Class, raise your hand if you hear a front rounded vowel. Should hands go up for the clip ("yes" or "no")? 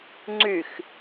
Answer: yes